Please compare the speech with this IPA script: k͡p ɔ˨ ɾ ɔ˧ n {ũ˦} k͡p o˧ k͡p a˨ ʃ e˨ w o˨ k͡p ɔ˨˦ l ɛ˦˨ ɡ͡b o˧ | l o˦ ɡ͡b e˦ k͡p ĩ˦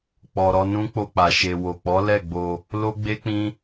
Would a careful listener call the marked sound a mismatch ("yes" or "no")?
no